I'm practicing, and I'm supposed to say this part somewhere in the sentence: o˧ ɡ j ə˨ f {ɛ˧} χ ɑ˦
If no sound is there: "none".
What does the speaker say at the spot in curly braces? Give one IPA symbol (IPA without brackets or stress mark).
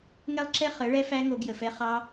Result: ɛ˦